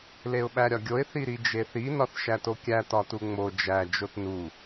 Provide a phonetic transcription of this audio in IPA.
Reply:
l e ʊ̯ ɓ æ ɾʲ ɒ ɡʲ o ɪ̯ θ i ɾ i d͡ʒ e θ i n ɒ θ ʃ æ t o kʲ æ t ɒ t u ŋ͡m o d͡ʒ æ d͡ʒ o t n u

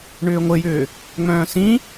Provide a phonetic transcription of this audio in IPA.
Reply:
ɳ ʏː ŋʷ ɘ j ʏː | ŋ͡m œ̃ː s ĩ

